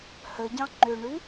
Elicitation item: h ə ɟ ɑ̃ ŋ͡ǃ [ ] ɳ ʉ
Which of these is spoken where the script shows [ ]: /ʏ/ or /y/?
ʏ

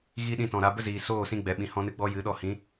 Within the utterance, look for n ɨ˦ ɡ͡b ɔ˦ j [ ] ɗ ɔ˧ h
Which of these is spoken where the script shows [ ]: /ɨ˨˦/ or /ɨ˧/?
ɨ˨˦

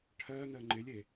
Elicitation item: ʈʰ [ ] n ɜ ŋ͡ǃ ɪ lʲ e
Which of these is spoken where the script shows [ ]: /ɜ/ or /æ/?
ɜ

